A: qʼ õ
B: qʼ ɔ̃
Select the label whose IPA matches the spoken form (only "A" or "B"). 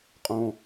A